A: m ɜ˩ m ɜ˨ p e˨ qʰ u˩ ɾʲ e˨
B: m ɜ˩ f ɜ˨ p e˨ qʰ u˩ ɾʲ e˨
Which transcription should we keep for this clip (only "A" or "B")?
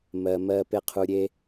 A